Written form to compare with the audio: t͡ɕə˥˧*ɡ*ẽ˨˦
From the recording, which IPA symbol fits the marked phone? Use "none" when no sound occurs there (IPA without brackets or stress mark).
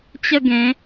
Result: ɡ